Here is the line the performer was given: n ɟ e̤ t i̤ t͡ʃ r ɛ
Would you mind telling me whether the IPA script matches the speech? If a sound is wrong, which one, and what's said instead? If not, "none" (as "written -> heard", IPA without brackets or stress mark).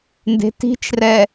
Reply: ɟ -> d